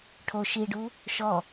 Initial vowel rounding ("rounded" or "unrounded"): rounded